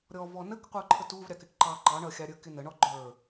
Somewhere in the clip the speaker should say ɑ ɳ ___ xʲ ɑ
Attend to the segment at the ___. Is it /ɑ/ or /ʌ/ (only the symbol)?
ʌ